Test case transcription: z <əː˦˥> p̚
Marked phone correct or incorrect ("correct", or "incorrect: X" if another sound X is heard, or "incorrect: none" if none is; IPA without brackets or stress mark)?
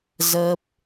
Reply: correct